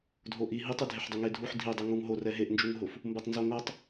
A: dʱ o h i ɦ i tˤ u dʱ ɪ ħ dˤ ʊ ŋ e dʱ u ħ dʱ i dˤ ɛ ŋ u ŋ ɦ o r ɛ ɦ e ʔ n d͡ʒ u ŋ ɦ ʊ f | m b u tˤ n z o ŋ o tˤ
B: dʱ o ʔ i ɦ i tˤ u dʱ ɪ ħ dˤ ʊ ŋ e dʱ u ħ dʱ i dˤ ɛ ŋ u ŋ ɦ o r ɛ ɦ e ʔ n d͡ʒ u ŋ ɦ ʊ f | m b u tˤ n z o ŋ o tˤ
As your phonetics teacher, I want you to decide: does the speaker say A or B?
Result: B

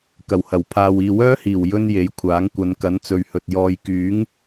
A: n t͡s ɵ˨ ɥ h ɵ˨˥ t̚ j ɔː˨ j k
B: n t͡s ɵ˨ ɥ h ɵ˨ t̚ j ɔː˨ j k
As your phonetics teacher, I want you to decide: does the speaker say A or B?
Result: B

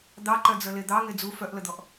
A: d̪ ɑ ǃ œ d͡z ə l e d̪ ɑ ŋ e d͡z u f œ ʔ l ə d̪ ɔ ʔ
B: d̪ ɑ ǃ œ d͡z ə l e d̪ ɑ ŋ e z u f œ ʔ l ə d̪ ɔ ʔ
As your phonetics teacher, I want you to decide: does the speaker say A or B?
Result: A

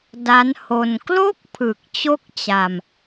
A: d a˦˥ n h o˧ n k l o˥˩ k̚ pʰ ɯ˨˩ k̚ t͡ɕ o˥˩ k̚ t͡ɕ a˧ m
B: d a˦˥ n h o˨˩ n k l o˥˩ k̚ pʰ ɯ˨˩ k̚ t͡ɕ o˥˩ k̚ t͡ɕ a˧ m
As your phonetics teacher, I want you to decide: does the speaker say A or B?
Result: A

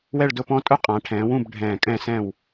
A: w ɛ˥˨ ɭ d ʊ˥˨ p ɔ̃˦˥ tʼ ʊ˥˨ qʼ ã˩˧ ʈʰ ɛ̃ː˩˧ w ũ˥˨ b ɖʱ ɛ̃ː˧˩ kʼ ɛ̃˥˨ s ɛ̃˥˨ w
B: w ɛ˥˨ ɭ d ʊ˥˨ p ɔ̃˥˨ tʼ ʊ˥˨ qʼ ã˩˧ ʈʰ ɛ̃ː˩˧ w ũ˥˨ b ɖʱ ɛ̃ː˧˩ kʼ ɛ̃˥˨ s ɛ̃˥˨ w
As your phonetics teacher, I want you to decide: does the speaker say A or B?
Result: A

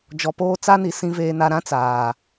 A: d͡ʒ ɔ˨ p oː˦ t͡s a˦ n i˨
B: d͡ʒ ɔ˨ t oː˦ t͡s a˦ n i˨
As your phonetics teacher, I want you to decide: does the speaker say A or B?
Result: A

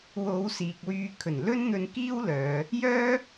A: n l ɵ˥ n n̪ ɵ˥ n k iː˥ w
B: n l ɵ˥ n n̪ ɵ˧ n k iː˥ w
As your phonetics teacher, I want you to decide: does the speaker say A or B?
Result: B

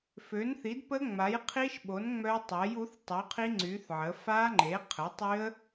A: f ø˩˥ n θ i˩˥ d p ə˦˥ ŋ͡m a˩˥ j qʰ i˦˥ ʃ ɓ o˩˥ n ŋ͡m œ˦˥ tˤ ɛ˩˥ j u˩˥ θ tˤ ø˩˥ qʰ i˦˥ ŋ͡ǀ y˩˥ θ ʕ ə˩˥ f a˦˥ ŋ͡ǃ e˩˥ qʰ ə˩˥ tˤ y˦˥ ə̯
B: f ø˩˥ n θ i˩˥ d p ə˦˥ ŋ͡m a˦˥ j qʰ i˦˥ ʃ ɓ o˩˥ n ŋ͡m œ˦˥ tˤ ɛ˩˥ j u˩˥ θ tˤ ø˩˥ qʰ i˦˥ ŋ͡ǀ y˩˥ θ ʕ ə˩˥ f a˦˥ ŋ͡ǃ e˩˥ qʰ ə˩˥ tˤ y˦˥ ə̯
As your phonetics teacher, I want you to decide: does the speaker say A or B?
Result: A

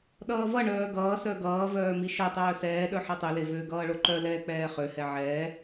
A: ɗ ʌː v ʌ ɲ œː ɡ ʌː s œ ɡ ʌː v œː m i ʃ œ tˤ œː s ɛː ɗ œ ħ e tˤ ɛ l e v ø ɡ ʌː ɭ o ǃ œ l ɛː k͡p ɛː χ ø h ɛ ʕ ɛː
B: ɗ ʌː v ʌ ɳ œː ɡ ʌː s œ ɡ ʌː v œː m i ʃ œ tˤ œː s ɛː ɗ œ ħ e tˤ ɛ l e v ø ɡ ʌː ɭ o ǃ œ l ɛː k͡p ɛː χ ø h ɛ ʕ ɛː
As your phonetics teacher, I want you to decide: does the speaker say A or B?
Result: B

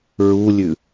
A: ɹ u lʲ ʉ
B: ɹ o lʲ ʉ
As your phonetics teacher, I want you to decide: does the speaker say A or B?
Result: A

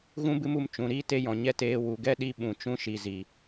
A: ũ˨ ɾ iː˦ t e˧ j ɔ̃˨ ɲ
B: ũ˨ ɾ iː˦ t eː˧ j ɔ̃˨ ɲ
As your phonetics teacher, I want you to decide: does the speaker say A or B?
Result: A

